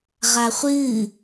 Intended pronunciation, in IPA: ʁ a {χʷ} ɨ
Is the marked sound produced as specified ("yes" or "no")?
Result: yes